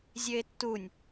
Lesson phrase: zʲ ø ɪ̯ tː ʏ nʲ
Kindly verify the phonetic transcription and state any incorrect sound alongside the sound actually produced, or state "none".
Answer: ʏ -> u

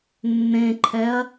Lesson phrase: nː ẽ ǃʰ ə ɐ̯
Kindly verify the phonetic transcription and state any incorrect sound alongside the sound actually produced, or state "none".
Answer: ə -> ɛ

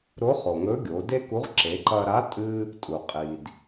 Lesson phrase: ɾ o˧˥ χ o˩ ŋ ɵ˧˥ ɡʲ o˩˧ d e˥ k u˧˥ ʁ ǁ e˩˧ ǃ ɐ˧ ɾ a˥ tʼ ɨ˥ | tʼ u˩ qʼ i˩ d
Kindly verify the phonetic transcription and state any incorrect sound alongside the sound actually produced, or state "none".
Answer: a˥ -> a˧˥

